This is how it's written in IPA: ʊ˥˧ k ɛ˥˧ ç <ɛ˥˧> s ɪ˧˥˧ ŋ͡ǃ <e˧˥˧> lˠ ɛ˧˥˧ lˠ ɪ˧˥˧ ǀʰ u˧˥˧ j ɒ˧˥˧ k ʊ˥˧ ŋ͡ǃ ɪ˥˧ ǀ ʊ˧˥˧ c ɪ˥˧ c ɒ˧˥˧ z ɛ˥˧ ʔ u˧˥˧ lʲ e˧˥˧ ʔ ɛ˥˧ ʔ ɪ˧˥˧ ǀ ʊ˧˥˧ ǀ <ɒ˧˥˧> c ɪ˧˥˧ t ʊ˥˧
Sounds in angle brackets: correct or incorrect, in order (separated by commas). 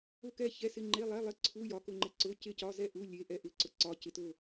incorrect, correct, correct